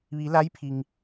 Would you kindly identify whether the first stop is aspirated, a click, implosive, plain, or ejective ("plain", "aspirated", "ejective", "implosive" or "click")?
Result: aspirated